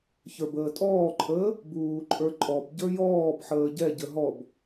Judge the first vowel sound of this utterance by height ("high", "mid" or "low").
mid